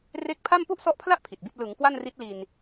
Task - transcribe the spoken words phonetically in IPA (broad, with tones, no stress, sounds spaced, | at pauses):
r e˦˥ k̚ pʰ a˥˩ m p u˥˩ ʔ s ɔ˦˥ ʔ pʰ l a˥˩ ʔ pʰ i˨˩ t̚ b i˥˩ t̚ l ɯ˩˦ ŋ k w a˥˩ n r i˦˥ t̚ l i˧ n